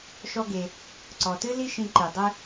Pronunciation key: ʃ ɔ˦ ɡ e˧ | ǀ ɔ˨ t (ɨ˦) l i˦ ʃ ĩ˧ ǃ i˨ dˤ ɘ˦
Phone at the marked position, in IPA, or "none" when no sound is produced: ɨ˦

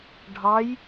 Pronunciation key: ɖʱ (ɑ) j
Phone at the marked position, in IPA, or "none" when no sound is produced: ɑ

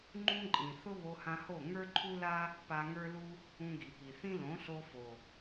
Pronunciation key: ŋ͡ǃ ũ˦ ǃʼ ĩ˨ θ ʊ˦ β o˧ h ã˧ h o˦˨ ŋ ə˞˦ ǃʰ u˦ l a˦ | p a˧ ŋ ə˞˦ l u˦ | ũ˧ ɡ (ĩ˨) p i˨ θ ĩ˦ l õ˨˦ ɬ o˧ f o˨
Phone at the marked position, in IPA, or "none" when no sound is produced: i˨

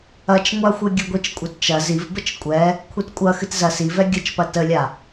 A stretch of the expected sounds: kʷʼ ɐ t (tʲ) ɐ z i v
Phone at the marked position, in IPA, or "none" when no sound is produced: t͡ʃ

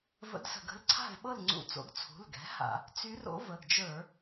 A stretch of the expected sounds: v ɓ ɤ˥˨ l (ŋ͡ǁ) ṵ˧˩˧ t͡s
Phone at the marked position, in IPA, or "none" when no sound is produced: ŋ͡ǀ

